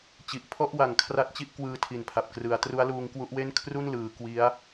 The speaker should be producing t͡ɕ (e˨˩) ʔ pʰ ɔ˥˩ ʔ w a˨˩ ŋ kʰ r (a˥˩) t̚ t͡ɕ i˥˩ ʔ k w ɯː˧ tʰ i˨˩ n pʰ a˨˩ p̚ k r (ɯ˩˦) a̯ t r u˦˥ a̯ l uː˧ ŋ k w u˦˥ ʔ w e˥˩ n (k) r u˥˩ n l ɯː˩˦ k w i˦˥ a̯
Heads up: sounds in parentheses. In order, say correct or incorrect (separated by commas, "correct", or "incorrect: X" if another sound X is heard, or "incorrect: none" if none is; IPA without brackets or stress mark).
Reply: incorrect: i˨˩, correct, correct, incorrect: kʰ